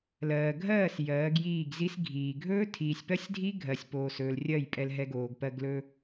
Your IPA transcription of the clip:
l ɜː˨ ɡʱ ɜː˦˨ s j ɜː˨˦ ɡ j iː˦˨ ɡ z i˦ s ɡʱ iː˨ ɡʱ ɵː˦ tʰ iː˨ sʲ p ɜ˦ sʲ dʱ i˦ ɡʱ ɜ˨ sʲ p oː˨ s ɵː˨ l rʲ ɜ˦˨ j pʼ ɛ˧ l ɦ ɛ˧ ɡ oː˨ ɡ p ɜ˧ ɡ l ɵ˧

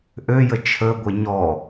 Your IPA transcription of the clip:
ʔ ø j ə t͡ʃʰ ə ɡʷ e ɲ ɔ

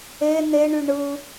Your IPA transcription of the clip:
e n e ɳ y ɳ ɯ

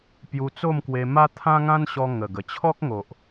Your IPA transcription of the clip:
p j u˧ t͡s o˥˧ m k w e˧ m a˦ t̪ʰ ã˦ ŋ ã˦ n ɕ ɔ˧ ŋ ə˨˩ ɡ ə˨˩ t͡ɕʰ ɔ˦ k̚ ŋ o˨ ʔ

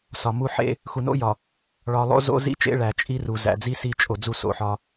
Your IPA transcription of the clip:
s ɒ˨ m u˦ ħ ḛ˦ | x u˨ n o̰˦ j ɒ˨ | ɭ ɒ˨ lˠ o̰˦ z o̰˦ z ḭ˦ t͡ʃ ḛ˦ ɭ æ˨ t͡ʃʼ i˦ r u˨ z æ̰˨ d͡z i˦ s i˦˨ t͡ʃʼ o˨ d͡z u˦ s o̰˨ ħ ɒ˦

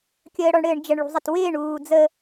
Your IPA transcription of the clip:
kʲ əː ɽ ɔ ɳ ɽ ɘː ɳ d͡ʒ ə ɳ ɭ ṳ zˤ ɘ t w ɪː ɳ uː d͡z ə

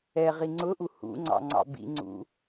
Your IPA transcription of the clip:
ɛ ʁ i ŋ͡ǀ ʊ ʔ u h ṵ ŋ͡ǀ ɑ̰ ŋ͡ǀ ɑ̰ b ḭ ŋ͡ǀ ṵ

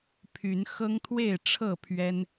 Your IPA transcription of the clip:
pʰ y˨˦ n x ɤ˦ ŋ t̪ʰ w e˥˨ ɪ̯ ʈ͡ʂʰ ɤ˥˨ pʰ ɥ ɛ˦ n

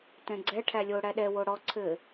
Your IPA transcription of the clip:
t ɛ̃ ɡ͡ǀ ɛ ʈʰ æ lʲ o ɽ æ ɗ ɛ w o ɽ ɔ ǀʰ ɘ

